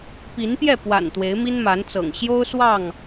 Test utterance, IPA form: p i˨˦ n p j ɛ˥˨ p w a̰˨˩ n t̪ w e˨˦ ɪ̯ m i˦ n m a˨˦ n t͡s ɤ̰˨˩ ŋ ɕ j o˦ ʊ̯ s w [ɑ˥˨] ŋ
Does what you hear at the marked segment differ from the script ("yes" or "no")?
no